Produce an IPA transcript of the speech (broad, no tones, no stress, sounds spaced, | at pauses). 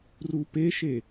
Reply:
r u p e ʃ e